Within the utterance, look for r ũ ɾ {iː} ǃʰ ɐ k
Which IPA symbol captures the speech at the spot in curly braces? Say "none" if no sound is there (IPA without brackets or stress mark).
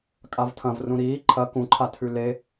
iː